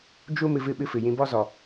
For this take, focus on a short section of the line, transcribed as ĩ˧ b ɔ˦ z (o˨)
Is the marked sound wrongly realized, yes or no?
yes